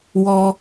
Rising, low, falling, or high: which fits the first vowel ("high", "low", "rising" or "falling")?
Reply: high